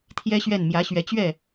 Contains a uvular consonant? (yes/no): no